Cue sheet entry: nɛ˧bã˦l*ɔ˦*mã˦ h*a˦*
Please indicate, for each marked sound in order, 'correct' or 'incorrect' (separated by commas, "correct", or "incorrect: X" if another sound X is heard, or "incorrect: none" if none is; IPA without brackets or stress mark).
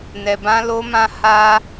incorrect: o˦, correct